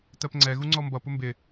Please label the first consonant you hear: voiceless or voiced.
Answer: voiceless